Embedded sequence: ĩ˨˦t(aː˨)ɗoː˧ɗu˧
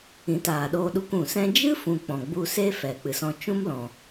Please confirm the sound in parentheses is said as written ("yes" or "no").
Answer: yes